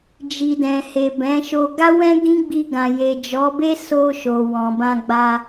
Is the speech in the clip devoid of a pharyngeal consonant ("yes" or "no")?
yes